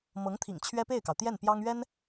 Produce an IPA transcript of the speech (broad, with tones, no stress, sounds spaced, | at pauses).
m ɤ˧˥ ŋ t̪ʰ ḭ˨˩ ŋ t͡ɕʰ ɥ ɛ˥ p e˥˩ ɪ̯ k ɑ˩ ʊ̯ t̪ j ɛ˥˩ n p j ɑ˥ ŋ ɥ ɛ˥ n